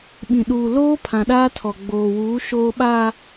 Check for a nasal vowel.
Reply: present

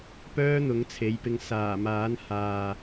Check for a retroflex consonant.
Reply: absent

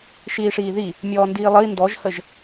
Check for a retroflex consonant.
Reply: present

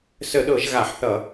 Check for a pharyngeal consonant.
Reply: present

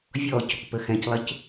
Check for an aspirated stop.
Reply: absent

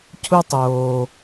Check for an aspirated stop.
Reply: present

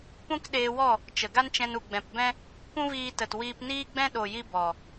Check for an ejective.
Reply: absent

